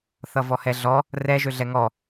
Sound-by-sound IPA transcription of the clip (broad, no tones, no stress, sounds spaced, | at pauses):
θ ʌ v ɔ h ɛ ɮ ɔ | r ɛ ʒ ø ɮ ɛ ŋ ɔ